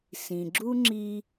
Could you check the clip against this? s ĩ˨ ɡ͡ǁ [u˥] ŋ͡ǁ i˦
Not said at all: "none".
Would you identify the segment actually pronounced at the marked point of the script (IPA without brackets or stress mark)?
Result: u˥